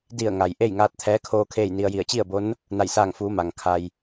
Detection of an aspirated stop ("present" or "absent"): present